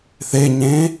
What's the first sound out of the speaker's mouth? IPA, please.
θ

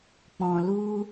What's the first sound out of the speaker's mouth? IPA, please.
k͡p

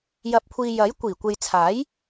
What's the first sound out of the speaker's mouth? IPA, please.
j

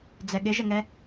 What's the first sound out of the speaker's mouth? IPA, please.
d͡z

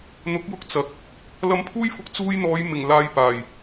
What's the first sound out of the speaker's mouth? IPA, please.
n̪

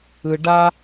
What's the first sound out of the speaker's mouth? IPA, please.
ɯ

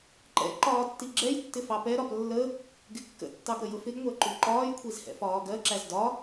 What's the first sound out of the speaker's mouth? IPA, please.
ǃ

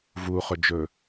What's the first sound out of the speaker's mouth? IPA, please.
v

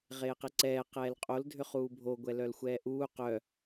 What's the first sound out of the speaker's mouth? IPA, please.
ʁ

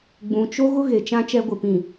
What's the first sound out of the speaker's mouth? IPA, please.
ɡ͡b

